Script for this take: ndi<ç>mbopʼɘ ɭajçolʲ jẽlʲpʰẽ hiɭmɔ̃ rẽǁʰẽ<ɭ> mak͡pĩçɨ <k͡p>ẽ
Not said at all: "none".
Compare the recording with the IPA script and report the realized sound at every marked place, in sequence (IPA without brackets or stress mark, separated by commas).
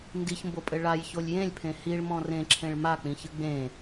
ç, ɭ, ɡ͡b